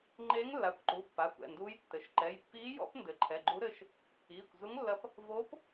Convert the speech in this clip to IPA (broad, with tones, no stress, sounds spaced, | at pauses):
ŋ͡ǃ eː˧˥ ŋ lː a˩˧˩ kʷ ǃ u˩˧˩ pː a˩˧˩ kʷ ɛ̰˩˧˩ n d uː˧˥ j tː ɘ˩˧˩ ʃ ǃ ɛ˩˧˩ j pː iː˧˥ j ɔ̰˧˥ p n d ɘ˩˧˩ ǃʰ ɛ˩˧˩ ɡ͡ǃ u˧˥ ɾ ɘ˧˥ ʃ | iː˩˧˩ kʷ z u˧˥ ŋ lː ɐ˧˥ p | v o˧˥ p